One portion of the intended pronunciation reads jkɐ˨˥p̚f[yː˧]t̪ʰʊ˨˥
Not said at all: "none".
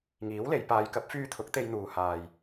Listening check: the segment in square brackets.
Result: yː˧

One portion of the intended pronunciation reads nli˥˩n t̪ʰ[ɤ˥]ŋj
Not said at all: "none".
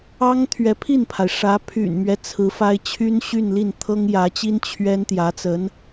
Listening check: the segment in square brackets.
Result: ɤ˥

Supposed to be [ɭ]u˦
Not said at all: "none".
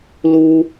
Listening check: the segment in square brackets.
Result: l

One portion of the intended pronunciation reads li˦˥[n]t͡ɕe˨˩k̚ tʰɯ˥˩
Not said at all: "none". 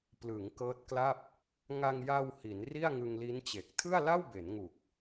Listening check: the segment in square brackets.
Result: n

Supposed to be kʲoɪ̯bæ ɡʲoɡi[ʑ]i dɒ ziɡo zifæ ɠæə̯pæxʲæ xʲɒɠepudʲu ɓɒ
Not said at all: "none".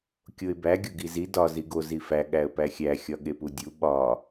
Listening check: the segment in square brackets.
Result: z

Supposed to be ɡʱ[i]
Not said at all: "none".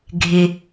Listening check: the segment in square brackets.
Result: ɪ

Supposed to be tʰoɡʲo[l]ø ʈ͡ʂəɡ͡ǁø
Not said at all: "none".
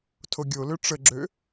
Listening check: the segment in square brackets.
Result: l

